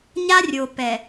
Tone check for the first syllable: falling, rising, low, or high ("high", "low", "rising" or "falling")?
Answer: high